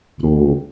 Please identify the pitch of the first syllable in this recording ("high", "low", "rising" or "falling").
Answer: low